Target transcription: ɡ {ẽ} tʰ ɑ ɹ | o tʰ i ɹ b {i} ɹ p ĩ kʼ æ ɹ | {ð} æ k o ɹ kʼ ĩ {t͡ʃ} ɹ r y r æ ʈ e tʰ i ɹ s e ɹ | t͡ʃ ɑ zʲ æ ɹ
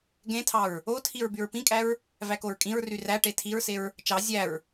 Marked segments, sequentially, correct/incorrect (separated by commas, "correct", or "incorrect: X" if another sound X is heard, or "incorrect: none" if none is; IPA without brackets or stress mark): correct, incorrect: y, incorrect: v, incorrect: none